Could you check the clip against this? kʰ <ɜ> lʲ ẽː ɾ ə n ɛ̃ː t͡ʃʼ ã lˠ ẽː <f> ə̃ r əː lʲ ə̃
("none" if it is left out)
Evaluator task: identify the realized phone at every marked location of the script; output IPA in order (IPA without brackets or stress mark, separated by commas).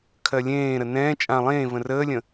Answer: ɜ, v